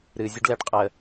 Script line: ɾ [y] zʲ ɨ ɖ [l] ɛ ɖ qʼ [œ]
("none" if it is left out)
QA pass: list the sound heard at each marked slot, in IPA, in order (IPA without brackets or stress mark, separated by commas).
ɨ, l, ə